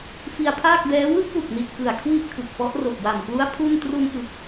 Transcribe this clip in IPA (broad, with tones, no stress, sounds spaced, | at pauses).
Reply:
f i˧ a̯ pʰ aː˥˩ k̚ b ɛː˦˥ w ɯ˥˩ k̚ w u˨˩ k̚ n i˨˩ t̚ k ɯ˨˩ a̯ kʰ w i˥˩ ʔ kʰ ɯ˨˩ k̚ p ɔ˦˥ ʔ r o˨˩ k̚ w a˨˩ m k l u˦˥ a̯ pʰ u˥˩ n t r u˧ n ʔ ɯ˨˩ k̚